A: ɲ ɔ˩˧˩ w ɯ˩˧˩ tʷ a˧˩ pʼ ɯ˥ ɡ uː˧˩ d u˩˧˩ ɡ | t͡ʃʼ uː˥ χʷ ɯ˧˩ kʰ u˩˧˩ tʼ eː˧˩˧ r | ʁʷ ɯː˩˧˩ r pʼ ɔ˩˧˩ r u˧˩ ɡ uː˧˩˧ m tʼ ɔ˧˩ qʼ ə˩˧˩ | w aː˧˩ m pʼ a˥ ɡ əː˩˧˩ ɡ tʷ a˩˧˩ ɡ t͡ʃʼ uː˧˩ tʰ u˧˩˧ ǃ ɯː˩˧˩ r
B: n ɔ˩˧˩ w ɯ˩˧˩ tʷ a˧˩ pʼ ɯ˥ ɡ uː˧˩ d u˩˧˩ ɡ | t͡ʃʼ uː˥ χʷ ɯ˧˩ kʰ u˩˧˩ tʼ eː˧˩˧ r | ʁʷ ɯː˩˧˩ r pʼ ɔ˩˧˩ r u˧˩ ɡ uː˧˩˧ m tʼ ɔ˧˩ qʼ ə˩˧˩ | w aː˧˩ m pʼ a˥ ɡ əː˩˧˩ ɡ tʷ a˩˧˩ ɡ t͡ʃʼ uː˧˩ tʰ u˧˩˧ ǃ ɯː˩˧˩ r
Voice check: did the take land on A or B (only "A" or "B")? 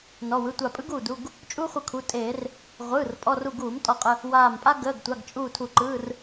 B